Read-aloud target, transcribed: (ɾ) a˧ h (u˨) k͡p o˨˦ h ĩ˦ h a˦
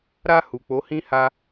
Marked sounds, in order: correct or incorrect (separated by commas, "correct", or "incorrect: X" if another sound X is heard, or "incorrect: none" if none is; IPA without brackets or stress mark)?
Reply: correct, correct